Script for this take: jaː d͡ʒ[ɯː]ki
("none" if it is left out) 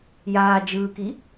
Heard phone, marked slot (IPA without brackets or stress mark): ɯː